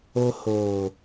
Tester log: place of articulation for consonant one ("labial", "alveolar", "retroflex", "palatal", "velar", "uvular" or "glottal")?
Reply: glottal